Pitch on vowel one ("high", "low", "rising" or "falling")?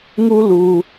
high